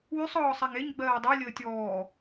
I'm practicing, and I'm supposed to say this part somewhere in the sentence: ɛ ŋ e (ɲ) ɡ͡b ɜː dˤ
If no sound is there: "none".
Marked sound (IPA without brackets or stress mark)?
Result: ɲ